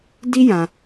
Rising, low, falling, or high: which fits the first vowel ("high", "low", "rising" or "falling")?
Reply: high